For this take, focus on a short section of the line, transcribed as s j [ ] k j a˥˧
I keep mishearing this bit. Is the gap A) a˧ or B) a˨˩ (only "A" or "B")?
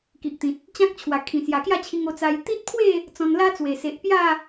B